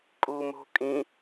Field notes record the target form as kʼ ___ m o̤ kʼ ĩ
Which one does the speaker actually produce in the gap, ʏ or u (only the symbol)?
u